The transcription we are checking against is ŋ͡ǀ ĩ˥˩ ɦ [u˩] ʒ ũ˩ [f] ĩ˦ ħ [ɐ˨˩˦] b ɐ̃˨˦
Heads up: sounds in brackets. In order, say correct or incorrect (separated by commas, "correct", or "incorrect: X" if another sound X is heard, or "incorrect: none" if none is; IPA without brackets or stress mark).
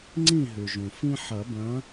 incorrect: ʉ˩, correct, correct